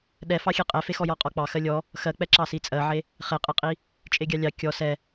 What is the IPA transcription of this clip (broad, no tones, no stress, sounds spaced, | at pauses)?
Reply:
ɗ ɛ f ɑ xʲ e qʼ ɛ f e x ɔ j ɔ qʼ ɔ k͡p ɑ x ɜ lʲ ɔ | x ɜ k͡p ɛ ǁ ɑ s i t͡sʼ ɜ ʕ e | χ e qʼ ɛ qʼ i | t͡ʃʼ e ɡʲ ɑ lʲ ɑ kʲ ɔ s ɛ